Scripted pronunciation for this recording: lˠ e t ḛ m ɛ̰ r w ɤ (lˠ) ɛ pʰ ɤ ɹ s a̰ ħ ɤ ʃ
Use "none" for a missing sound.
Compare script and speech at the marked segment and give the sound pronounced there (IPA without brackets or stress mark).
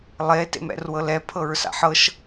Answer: l